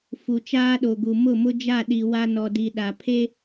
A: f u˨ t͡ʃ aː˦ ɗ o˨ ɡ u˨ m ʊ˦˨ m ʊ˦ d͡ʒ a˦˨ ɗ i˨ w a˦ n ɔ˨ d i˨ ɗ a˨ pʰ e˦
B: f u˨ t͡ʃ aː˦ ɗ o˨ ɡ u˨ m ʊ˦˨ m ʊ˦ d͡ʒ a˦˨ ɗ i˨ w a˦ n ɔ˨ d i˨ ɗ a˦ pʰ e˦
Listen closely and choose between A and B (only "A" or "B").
A